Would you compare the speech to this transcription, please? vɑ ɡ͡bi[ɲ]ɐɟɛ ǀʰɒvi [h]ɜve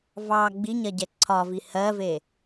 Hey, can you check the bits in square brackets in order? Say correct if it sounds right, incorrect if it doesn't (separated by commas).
correct, correct